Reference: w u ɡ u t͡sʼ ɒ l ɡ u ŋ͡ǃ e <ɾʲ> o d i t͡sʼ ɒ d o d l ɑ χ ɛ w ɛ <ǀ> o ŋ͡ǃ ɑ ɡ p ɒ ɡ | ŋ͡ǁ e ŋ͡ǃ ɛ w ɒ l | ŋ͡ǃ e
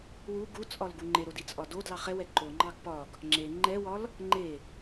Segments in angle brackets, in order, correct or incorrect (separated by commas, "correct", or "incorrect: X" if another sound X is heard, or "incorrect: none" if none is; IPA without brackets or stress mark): incorrect: ɾ, incorrect: ǃ